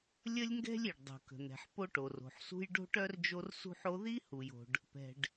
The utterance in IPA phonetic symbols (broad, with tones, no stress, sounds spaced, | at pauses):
lʲ ə˥ lʲ ŋ ɡ ɛ̤˥ lʲ i˩ ɖ dˤ ṳ˩ k ə̤˩ n̪ ɛ̤˩ ħ p o˥ ʈ o˩ r o̤˩ ħ s ṳ˥ j ɖ o̤˥ ʈ œ˥ r d͡ʒ o˥ r s ṳ˥ ħ o˥ ð i˥ h u˩ j o̤˩ ɖ | p ɛ̤˩ ɖ